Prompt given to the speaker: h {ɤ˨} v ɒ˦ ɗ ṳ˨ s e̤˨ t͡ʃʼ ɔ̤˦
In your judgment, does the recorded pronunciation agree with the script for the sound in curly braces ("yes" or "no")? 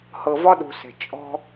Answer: yes